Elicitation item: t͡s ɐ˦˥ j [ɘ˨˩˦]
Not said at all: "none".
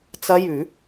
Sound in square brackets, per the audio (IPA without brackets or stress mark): ʉ˨˩˦